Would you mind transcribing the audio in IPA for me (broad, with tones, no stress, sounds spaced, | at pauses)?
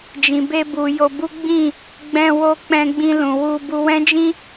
d͡ʒ ĩ˨ b e˧ b u˨ j o˧ b u˦ ɡ͡b ĩ˦˨ | ɡ͡b ɛ̃˧ w o˧ k͡p ɛ̃˧ ɡ͡b ĩ˧ l ũ˨ w u˧ b u˧ w ɛ̃˦ d͡ʒ ĩ˦